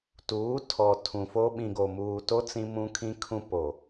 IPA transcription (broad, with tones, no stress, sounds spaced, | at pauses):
t uː˨˦ tʰ ɔ˨ tʰ ũ˨ f o˦ ɓ ĩ˨ ɡ o˨ m uː˨ t o˦ t͡s ĩ˦ m ũ˦ kʰ ĩ˦ kʰ ũ˦ p o˨